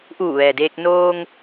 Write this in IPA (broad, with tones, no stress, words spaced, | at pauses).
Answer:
ʔuː˧˩ʋɛː˩deː˧k̚ noː˧ŋ